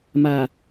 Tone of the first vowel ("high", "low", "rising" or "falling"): low